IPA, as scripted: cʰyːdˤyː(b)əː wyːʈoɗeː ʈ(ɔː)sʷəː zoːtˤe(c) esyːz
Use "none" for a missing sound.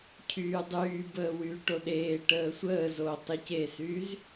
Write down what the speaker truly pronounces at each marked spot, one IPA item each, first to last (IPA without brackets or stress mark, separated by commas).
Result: b, əː, c